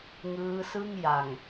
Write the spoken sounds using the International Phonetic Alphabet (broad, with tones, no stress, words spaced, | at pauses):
ŋɯː˦˥sɯ˥˩ŋ ja˨˩ŋ